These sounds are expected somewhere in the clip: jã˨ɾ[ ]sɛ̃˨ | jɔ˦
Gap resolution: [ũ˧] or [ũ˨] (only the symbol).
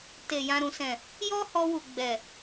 ũ˨